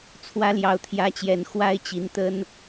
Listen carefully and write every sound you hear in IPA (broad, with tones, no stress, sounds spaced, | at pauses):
t͡sʰ w ä˨˦ l j ɑ˨˩ ʊ̯ t̪ʰ j ä˨˦ t͡ɕ j ɛ˨˩ n x w a˦ ɪ̯ t͡ɕ i˨˦ n t̪ ə˦ n